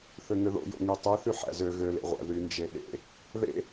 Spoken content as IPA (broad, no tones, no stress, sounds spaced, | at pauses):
θ ø ŋ ø ð o̰ j o̰ ŋ y tˤ ʉ θ y ħ æ̰ z ø ɣ ø l ḛ ʁʷ æ̰ ð y n d͡ʒ e ɗ ḛ | ð ḛ